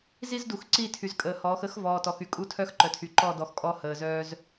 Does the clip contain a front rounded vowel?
yes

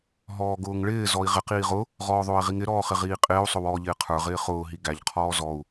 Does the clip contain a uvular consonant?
yes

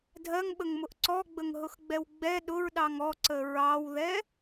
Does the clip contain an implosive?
yes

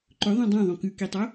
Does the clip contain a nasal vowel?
yes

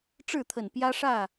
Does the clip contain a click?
no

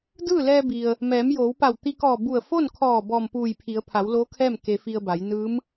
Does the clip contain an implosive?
no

